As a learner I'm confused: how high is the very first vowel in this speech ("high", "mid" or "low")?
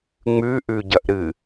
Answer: high